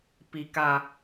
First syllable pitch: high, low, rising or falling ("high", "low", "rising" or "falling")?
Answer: low